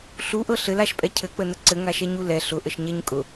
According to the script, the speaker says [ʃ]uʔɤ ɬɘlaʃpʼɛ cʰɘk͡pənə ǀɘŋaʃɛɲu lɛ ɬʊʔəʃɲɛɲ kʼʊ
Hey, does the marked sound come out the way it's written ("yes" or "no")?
no